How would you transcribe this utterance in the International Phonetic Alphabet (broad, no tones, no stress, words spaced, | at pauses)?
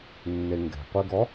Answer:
nːeŋɡɛ̤qʷeɡɔ